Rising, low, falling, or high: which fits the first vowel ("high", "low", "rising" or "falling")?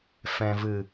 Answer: low